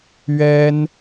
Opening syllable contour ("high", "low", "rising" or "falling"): high